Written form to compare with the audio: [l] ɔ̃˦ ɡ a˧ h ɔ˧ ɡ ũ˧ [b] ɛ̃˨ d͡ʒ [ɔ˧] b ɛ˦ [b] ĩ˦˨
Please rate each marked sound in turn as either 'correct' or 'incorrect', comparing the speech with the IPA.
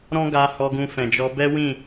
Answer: incorrect, incorrect, correct, incorrect

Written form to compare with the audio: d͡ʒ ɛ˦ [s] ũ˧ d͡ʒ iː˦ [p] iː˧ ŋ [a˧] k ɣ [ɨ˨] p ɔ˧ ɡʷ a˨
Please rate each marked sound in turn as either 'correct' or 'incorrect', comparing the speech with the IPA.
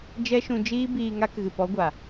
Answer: incorrect, incorrect, correct, correct

